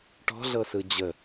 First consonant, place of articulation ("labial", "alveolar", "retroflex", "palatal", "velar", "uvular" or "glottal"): retroflex